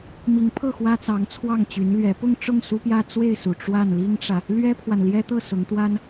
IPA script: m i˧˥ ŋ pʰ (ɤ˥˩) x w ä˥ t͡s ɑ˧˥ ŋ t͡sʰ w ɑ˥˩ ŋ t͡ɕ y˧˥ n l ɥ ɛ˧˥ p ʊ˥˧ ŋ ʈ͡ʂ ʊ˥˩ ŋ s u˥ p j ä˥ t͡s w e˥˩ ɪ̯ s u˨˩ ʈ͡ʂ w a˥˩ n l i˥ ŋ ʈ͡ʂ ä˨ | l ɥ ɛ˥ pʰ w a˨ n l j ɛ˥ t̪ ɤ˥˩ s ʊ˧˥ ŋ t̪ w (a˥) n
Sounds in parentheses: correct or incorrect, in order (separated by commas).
correct, correct